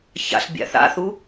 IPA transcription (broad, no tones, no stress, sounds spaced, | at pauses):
ç a̰ ɬ bʲ a̰ θ a̰ θ u